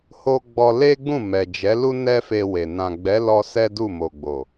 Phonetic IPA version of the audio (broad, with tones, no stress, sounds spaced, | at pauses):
h o˦ ɡ͡b ɔ˧ l e˦ ɡ͡b ũ˦˨ m ɛ˨ d͡ʒ ɛ˨˦ l u˦ n ɛ˦ f e˧ w e˨ n ã˨ ɡ͡b ɛ˨˦ l ɔ˧ s ɛ˦ d u˦˨ m o˨ ɡ͡b o˨